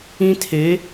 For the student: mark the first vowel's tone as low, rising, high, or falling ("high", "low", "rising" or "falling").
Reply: high